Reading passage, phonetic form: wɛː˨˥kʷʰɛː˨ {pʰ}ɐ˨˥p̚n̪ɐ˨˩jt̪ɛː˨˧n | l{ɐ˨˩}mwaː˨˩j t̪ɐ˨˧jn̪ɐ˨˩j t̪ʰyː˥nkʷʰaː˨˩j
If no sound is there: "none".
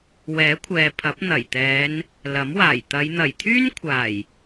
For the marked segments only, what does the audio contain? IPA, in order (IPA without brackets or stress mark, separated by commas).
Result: pʰ, ɐ˨˥